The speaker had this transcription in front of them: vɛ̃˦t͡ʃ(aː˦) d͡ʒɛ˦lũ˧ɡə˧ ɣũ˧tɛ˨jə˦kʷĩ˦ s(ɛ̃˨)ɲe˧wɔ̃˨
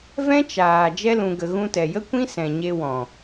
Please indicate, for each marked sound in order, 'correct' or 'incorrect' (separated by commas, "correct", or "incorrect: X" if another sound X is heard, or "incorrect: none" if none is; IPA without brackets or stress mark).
incorrect: aː˨, correct